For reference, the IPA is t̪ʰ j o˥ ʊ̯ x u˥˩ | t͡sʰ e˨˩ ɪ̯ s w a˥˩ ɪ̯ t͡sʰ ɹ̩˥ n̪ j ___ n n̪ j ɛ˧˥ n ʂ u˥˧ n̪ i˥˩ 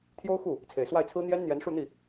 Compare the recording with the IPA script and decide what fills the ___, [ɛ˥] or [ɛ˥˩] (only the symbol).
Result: ɛ˥